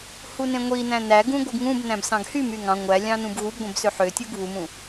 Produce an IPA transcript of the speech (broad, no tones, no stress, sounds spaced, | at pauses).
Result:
h u n ẽ ŋʷ i n æ̃ n æ ɡ ũ ɡʷ ɯ ɡ ŋ ũ b n æ̃ b s ɑ̃ ɡ h y m y ŋ ɑ̃ ŋʷ æ lʲ ɑ̃ n ũ b ɣ u b ɡʷ ẽ b s ø ħ ø tʲ u ɡ β u m ũ